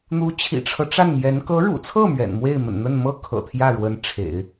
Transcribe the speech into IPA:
n̪ u˧˥ t͡ɕʰ ḭ˨˩ ʈ͡ʂʰ ɤ˦ ʈ͡ʂ a˥˩ n m j ɛ˧˥ n k ɤ˧˥ ɻ ṵ˨˩ t͡sʰ ɤ˥˩ m ɥ ɛ̰˨˩ n m w e˥˩ ɪ̯ m ə̰˨˩ n n̪ ə˥˩ n m ɤ˥ kʰ ɤ̰˨˩ t̪ʰ j ä˥˩ ɻ w ə˧˥ n ʈ͡ʂʰ ḛ˨˩˦ ɪ̯

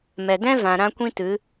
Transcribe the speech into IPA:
m ɛ˨ d ɛ̃˦ v ã˨ ɾ ã˦ kʷ ĩ˦ t ɨ˨˦

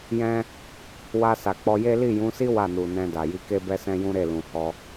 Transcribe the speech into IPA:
j ɛ̃˧ | w a˧ s a˨ k͡p ɔ˧ j e˦ l i˦˨ j ũ˨˦ s i˦ w a˦˨ n u˨ n ɛ̃˧ d a˨ j i˧ k e˦ b ɛ˦ s ɛ̃˦ j ũ˦ ɾ e˦˨ l ũ˨ h ɔ˧

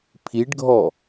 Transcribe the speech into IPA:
pʰ i ɖ ɡʱ ɔ

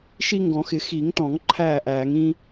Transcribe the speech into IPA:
ʃ i˦ ŋ ɡ ɔ̃˨˩˦ x ɪ˨˩˦ x i˨˩˦ ŋ t ɔ̃˨˩˦ ŋ ǃʰ æː˥˩ ʔ æː˨˩˦ ŋ ĩ˦

